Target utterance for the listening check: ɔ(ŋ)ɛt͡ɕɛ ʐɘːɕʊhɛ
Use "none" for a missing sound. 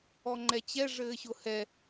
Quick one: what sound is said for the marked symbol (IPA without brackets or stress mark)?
ŋ͡ǃ